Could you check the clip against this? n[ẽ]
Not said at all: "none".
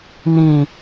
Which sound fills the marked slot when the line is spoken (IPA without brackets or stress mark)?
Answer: ĩ